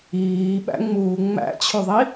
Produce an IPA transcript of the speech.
iːɓæ̰ŋ͡muː ŋ͡mæ̰t͡ɕʰuðˤi

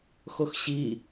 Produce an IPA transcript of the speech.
xoxɕi

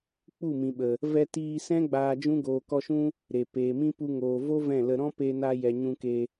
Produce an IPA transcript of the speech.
k͡pu˦˨mĩ˨ɓə˨ | vɛ˧tiː˧sɛ̃˦ ɡ͡baː˧d͡ʒũ˦ ɡoː˨kɔ˧ʃũ˦ | ɾe˨ peː˨mĩ˦pu˧ŋoː˨ vo˦ vɛ̃˦˨lə˧ ɾɔ̃˦pe˧na˧ jɛ˨ ɲũ˧ke˧

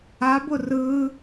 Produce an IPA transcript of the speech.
abʊ rɯː

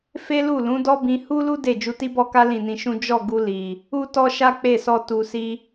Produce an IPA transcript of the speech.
fe˦lu˦˨lũ˨˦ dɔ˦bĩ˧ hu˦lu˦ de˦˨ d͡ʒu˧ti˦bɔ˦ka˦ lĩ˦˨nĩ˧ʃũ˦ d͡ʒɔ˦˨ɡu˧ li˨ | u˦tɔ˦ʃa˦ k͡pe˦˨sɔ˧ tu˨ si˧

